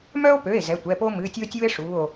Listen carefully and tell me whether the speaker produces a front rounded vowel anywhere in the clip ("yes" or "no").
yes